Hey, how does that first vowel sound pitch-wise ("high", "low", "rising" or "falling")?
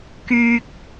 high